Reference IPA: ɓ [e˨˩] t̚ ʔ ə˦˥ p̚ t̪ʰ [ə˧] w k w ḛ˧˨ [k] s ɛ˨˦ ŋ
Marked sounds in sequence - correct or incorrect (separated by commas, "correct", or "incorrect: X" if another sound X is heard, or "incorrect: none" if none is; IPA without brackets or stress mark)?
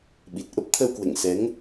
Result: incorrect: i˨˩, correct, incorrect: ŋ